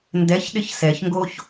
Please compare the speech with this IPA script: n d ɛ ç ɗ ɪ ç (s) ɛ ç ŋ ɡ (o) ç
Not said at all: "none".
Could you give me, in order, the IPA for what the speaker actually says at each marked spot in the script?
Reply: s, o

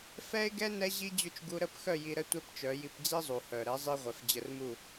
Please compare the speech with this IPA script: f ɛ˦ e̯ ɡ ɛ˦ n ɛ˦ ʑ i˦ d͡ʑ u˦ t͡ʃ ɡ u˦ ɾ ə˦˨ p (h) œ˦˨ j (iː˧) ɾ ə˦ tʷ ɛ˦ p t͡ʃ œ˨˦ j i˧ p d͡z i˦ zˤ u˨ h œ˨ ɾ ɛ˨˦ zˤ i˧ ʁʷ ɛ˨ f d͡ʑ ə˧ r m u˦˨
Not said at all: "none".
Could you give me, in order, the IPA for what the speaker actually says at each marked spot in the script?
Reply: x, i˧

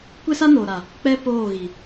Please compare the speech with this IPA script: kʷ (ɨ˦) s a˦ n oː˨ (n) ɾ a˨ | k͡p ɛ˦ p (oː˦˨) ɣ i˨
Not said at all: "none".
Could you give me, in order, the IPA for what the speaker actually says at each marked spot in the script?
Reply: e˦, none, oː˦˨

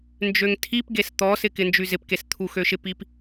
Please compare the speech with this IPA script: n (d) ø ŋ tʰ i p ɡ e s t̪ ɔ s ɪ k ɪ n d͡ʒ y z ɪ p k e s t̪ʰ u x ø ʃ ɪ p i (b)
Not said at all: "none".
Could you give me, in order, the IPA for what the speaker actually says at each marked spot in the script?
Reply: d͡ʒ, p

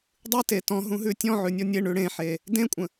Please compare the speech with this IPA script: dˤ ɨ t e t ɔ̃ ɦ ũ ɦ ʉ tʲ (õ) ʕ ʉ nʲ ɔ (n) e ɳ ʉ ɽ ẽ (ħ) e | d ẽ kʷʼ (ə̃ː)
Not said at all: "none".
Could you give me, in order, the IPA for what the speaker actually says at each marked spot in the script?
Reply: ɔ̃, nʲ, ħ, ə̃

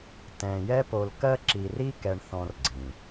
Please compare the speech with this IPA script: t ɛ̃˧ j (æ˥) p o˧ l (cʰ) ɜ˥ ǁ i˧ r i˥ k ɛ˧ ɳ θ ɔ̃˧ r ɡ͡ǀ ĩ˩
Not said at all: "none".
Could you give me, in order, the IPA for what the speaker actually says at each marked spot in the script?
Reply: ɛ˥, k

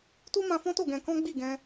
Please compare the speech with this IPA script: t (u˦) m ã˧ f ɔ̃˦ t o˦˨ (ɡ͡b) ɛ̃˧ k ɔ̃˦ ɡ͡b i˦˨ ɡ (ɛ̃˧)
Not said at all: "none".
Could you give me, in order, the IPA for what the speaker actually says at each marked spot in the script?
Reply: u˦, ɡ, ɛ̃˧

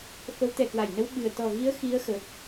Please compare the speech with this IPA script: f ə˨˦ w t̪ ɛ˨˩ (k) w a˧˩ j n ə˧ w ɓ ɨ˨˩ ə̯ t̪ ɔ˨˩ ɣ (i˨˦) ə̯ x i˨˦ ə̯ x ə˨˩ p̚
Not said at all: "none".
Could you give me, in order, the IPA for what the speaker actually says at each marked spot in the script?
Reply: k, i˨˦

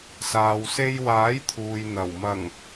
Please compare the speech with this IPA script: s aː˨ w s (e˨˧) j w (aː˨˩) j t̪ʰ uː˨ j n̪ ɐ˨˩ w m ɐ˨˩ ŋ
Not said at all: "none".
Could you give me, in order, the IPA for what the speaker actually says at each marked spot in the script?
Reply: e˧, aː˨˥

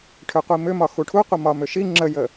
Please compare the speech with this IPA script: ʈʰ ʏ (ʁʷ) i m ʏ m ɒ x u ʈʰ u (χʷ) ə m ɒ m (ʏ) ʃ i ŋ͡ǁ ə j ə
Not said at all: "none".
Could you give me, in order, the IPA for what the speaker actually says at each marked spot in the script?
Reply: qʷ, qʷ, ʏ

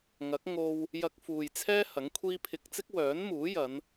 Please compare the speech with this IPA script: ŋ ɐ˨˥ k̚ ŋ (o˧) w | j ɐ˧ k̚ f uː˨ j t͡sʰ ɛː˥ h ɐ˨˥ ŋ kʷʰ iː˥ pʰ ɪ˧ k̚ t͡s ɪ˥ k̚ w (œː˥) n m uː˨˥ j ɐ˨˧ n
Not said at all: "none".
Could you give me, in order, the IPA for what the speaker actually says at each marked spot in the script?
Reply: o˧, œː˨˥

